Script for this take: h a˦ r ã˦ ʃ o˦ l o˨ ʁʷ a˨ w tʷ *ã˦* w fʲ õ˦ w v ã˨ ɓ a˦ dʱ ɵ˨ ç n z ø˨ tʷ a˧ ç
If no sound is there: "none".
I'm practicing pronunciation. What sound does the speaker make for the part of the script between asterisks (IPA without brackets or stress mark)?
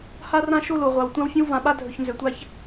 ã˦